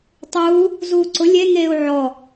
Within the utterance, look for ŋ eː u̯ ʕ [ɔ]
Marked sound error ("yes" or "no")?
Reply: no